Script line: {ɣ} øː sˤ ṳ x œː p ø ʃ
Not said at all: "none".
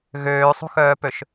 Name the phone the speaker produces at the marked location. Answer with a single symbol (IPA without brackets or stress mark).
ɣ